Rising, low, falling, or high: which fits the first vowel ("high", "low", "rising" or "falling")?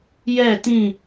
falling